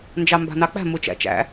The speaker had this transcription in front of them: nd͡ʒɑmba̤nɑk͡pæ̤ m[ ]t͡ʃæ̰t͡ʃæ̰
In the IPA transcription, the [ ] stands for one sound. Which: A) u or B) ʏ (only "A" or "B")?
A